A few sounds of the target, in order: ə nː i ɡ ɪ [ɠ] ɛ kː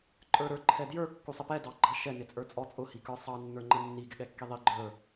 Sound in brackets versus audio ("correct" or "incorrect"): correct